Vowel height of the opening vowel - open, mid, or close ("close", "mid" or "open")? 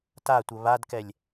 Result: open